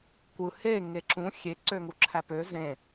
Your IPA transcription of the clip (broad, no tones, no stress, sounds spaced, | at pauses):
kʷ ɯ h e ŋ e ǁ ũ xʲ e ǀ ø ŋ u ǁʰ æ p ø z ẽ